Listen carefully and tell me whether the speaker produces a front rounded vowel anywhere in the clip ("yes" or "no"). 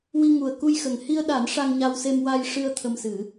no